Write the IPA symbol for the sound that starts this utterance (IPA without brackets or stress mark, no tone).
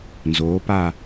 n